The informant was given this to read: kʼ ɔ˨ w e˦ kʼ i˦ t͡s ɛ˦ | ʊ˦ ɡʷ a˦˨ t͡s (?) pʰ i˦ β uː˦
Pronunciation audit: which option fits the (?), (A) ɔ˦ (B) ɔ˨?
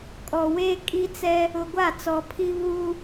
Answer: B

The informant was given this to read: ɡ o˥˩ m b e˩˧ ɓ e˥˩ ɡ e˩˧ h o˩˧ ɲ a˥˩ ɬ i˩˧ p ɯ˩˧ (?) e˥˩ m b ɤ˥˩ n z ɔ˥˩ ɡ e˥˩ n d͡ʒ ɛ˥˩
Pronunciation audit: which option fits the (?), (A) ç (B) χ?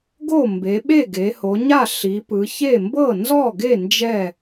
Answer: A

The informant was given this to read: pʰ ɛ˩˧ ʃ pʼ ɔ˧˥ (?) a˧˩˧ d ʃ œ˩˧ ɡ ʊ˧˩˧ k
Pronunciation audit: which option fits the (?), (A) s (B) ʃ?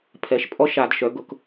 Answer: B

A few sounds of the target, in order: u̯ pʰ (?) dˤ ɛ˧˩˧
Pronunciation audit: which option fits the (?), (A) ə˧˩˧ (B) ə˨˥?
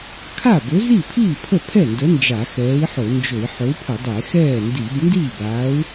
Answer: A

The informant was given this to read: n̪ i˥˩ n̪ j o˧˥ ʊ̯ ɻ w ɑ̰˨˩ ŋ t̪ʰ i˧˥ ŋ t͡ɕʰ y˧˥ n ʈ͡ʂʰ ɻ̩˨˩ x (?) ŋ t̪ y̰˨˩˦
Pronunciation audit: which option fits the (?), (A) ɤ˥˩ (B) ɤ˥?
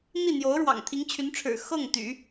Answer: A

